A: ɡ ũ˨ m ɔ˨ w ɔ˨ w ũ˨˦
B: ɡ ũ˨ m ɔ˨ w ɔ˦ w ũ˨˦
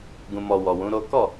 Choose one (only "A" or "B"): A